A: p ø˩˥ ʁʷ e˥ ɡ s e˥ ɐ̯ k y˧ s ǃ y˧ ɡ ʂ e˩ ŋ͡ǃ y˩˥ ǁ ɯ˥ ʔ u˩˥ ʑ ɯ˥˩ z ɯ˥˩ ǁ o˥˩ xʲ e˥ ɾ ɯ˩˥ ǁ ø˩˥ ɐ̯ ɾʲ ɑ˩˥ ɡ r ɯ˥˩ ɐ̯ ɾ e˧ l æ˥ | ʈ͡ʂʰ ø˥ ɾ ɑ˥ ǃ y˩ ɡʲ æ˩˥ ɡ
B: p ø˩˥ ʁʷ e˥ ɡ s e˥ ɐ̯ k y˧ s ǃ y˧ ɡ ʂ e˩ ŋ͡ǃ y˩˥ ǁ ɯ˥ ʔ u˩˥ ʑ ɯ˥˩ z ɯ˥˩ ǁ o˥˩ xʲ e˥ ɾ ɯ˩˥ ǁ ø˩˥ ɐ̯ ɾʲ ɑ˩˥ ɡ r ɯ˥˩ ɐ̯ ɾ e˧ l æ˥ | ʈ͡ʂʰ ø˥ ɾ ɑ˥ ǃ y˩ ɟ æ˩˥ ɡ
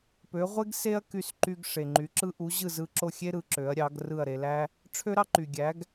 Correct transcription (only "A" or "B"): A